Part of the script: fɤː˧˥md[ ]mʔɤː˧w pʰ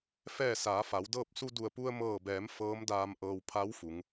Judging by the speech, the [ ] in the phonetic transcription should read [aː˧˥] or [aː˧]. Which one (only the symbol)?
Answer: aː˧